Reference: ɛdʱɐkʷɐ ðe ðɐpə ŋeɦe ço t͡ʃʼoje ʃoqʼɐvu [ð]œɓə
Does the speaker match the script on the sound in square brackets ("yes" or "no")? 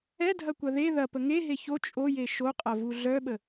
no